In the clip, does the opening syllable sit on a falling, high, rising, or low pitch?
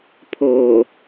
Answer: low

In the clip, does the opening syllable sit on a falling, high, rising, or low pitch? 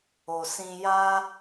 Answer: low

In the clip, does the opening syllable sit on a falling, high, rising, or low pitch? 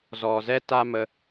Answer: low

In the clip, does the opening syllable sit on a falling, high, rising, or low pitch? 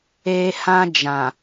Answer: high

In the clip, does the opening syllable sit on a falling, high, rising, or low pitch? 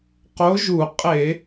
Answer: rising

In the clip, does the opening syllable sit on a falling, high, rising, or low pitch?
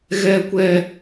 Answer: low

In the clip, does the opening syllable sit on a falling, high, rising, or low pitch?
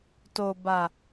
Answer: low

